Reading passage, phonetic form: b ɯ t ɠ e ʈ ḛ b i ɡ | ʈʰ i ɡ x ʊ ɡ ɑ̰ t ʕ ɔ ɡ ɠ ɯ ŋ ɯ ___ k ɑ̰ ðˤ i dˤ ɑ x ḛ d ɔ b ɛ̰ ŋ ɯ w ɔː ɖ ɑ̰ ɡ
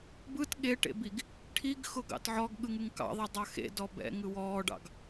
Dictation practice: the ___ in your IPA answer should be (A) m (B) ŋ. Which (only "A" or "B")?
B